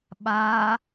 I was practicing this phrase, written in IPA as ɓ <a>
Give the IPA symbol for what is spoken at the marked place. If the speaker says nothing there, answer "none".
a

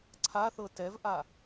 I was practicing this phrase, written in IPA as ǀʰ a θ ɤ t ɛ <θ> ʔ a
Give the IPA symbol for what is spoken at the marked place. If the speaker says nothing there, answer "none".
v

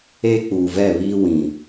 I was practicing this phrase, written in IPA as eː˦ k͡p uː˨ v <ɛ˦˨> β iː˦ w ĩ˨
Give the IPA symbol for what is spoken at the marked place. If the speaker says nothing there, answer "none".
ɛ˦˨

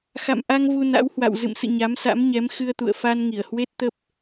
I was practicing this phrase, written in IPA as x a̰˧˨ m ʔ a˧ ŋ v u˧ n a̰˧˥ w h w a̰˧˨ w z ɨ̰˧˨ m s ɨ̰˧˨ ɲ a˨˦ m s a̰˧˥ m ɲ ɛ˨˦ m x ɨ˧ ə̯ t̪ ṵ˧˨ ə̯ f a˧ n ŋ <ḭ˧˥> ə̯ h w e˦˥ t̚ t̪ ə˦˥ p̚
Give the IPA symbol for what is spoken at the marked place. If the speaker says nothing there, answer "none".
i˧˩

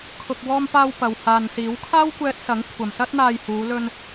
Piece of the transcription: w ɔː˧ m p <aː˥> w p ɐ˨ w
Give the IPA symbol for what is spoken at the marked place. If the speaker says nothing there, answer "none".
aː˧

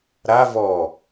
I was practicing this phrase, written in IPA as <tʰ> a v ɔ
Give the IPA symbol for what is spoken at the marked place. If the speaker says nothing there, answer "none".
ɾ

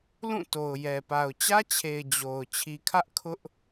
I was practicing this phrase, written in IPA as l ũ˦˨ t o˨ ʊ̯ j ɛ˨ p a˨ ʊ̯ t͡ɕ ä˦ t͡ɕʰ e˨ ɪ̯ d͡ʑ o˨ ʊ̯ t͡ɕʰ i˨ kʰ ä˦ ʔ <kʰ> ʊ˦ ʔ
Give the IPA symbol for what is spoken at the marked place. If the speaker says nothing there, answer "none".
kʰ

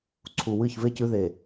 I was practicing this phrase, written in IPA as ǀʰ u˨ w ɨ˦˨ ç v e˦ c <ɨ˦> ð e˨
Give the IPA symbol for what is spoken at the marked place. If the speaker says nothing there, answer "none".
ʉ˦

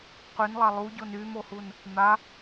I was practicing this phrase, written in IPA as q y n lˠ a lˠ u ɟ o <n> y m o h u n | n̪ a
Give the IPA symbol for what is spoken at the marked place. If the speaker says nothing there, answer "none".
n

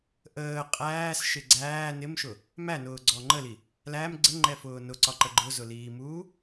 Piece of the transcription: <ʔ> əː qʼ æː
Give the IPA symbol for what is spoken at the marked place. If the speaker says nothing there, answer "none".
ʔ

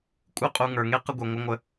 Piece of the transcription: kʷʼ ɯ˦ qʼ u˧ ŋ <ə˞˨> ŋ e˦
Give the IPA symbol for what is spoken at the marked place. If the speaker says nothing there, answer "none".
ə˞˨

